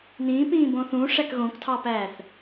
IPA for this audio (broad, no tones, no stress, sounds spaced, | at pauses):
n ĩː p ĩː b õ θ ũ ʂ æ k ɣ õ k tʰ ɑ p æː θ